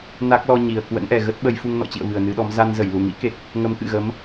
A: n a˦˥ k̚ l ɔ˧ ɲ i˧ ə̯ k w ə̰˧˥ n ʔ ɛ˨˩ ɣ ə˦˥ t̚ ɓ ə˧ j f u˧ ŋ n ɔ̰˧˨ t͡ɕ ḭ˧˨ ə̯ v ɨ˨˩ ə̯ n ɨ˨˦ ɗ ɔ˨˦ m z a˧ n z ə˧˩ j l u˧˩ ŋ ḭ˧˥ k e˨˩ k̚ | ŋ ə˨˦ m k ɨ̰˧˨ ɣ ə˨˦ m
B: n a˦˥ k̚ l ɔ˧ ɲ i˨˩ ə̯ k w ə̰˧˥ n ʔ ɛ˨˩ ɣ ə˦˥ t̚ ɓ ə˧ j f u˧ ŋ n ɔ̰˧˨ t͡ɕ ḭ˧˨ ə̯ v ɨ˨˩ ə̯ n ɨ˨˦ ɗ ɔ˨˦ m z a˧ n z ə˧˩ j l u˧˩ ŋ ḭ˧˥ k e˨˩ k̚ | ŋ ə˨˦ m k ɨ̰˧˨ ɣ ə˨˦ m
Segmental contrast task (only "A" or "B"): B